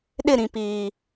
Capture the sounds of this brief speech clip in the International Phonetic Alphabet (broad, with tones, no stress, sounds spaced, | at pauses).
ɗ ɪ˦˨ ɾ ĩ˨ p iː˨